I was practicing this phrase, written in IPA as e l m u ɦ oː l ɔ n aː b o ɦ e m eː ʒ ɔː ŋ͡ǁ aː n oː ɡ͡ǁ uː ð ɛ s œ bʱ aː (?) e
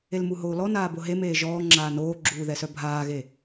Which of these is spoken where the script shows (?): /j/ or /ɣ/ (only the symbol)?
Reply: ɣ